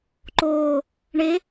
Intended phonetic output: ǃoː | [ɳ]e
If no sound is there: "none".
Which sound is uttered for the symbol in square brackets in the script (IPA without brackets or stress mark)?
ɳ